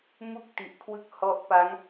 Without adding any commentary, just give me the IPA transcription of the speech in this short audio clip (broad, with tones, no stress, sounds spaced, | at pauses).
m u˥˩ k̚ t i˨˩ ʔ kʰ w ɯ˥˩ k̚ h ɔ˦˥ ʔ p a˦˥ ŋ